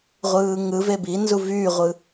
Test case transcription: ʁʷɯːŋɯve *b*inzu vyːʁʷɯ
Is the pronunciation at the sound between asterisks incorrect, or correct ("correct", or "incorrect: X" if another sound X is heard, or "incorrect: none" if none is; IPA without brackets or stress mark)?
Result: correct